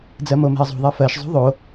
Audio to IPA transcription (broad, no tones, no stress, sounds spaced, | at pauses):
d͡z ɜ m o m e̤ ə̯ zˤ ṳ ðˤ e f ɜ ʃ zˤ o̤ ðˤ o